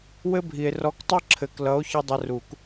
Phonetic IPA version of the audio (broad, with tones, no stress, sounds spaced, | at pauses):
w ɘ˥ bʱ i˨ e̯ r ɔ˧˥˧ k tˤ ʌ˥ ǁʰ ɘ˨ k l ʌ˨˥ o̯ ç ʌ˥ dˤ ə˧˥˧ r u˨˩˦ k